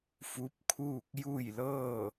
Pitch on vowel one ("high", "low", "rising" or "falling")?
rising